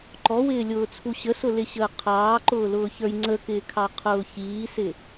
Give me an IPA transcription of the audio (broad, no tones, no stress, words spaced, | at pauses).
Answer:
ǃɔwɪːlʲʊːt͡sʰu ɕəsʊlɪɕəː qʰɑːǃʊːlʊːçə˞j ŋ͡ǀəkɪːkʰɑqʰʊː çiːsɪ